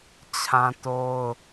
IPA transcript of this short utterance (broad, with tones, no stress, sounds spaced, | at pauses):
t͡ɕʰ ã˦ t o˦ ʊ̯